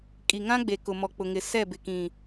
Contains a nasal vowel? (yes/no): yes